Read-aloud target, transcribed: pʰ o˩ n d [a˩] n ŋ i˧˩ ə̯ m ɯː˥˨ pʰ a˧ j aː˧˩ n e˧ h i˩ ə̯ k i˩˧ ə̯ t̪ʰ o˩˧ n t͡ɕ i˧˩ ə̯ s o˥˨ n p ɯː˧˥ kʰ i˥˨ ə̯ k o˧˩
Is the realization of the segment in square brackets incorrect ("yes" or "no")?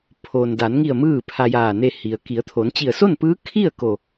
yes